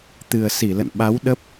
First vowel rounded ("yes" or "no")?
no